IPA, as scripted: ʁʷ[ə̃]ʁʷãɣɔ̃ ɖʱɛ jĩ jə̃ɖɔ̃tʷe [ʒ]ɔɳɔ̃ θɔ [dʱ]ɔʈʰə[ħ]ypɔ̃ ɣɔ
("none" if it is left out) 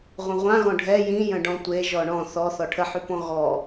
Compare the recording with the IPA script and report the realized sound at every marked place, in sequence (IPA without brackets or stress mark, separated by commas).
ə̃, ʒ, θ, ħ